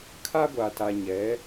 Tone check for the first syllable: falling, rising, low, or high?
high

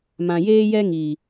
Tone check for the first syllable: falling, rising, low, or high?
low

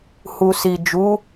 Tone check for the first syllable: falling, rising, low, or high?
low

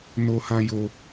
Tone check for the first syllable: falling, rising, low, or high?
high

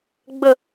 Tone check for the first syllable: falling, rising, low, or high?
falling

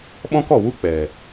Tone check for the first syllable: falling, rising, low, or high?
high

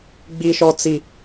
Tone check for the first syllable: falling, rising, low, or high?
high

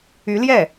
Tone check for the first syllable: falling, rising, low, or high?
rising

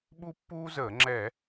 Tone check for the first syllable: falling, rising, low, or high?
high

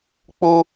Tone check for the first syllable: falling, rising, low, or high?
high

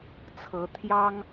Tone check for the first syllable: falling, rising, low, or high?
rising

